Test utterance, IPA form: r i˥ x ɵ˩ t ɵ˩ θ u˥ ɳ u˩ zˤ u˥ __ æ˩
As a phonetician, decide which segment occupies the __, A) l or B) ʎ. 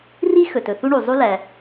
A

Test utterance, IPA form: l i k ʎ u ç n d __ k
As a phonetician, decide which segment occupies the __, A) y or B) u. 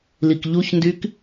A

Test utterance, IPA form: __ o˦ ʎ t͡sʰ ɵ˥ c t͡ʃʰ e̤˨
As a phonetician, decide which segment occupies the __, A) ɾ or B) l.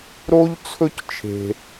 A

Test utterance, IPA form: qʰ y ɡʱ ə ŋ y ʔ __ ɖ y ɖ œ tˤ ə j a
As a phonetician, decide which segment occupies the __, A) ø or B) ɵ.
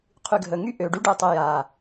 A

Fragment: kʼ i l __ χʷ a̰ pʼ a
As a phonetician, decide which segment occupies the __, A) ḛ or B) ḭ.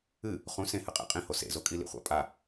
B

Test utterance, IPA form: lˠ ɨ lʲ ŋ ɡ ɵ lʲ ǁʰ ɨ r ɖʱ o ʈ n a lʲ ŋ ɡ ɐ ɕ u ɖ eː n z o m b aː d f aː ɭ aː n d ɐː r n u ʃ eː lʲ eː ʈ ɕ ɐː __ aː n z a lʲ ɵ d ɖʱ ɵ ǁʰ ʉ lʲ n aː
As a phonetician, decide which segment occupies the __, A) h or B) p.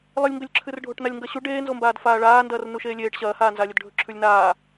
A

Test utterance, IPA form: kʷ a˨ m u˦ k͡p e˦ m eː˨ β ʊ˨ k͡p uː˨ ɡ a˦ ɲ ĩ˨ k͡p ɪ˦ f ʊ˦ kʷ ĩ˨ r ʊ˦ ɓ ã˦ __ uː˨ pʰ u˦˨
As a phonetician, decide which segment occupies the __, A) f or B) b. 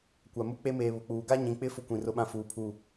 A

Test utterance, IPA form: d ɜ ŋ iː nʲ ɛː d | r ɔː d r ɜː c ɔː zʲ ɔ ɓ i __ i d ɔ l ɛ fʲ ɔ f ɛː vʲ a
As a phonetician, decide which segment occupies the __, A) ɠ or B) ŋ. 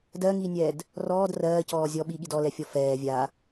A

